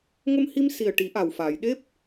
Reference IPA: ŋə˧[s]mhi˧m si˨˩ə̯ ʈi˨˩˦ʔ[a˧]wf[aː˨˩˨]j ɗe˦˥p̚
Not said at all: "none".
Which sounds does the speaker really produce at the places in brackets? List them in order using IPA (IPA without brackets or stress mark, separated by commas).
none, a˨˩, aː˨˩˨